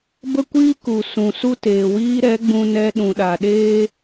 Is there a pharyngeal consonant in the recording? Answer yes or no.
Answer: no